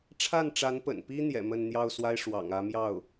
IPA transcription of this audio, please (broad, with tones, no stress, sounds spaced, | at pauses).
ʈ͡ʂʰ a˥˩ n ʈ͡ʂ a˧˥ n p ə̰˨˩ n p i˥ n̪ j ɛ̰˨˩ m ə˥˧ n n̪ j ɑ˥˩ ʊ̯ s w a˥ ɪ̯ ʂ w ɑ̰˨˩ ŋ ä˧˥ m j ɑ˥˩ ʊ̯